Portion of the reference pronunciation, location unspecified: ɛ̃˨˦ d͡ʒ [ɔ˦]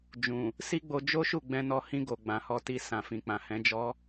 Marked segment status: correct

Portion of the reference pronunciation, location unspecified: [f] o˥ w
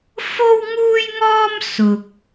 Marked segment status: correct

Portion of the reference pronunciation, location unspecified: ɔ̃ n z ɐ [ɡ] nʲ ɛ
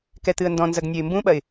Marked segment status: correct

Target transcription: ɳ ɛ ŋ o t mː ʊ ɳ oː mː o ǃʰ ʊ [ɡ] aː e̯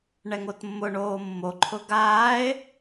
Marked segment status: correct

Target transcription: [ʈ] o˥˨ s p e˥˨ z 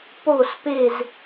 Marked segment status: incorrect: p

